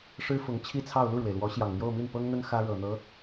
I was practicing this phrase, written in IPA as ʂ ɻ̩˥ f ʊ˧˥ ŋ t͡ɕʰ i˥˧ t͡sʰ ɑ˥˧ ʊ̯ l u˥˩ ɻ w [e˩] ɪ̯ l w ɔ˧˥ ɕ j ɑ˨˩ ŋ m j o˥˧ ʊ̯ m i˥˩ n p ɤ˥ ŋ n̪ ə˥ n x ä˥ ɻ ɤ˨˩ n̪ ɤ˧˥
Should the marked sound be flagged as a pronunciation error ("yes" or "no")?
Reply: no